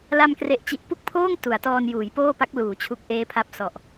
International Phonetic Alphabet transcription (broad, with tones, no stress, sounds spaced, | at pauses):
l a˧ m k r e˨˩ ʔ t͡ɕ i˨˩ ʔ p u˥˩ k̚ pʰ oː˥˩ ŋ t u˩˦ a̯ t ɔː˧ n j uː˩˦ j p oː˥˩ p a˦˥ k̚ l uː˩˦ t͡ɕʰ u˨˩ k̚ ʔ eː˦˥ pʰ a˦˥ p̚ s ɔ˨˩ ʔ